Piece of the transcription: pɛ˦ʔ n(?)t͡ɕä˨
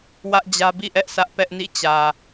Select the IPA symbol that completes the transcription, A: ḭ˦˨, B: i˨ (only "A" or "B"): A